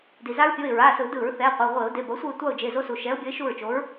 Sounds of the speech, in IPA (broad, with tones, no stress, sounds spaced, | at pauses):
d i˩ z a˦ ɹ pʲ o˩˧˩ ɪ̯ ɹ a˩˧˩ s ɯ˧˩˧ d ɯ˧˩˧ ɹ θ ɛ˩˧˩ qʷ ɛ˩˧˩ ʁʷ e˧˩˧ ʊ̯ d e˩˧˩ b ʌ˨˥ sʷ ɯ˦˨ ɪ̯ tʷ a˦˨ ʊ̯ d͡ʒ e˩˧˩ z o˦ s u˩ ʃ ɛ˨˥ ʊ̯ bʲ ʌ˨˥ ɪ̯ ʃ u˦˨ ɹ t͡ʃ o˨˥ ɹ